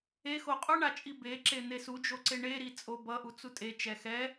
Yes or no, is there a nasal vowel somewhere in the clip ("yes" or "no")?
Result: no